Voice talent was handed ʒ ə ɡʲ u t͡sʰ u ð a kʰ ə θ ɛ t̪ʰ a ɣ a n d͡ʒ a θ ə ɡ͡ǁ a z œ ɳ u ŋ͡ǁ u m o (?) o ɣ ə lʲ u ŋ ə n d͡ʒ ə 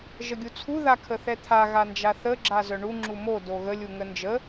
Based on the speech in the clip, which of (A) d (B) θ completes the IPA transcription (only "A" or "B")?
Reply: A